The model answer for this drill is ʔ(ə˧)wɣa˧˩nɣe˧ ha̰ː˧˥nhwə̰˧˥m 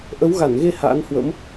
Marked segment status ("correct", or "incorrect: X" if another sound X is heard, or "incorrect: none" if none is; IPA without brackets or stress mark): incorrect: ə˨˦